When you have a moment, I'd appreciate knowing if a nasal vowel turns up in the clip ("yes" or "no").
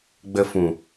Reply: yes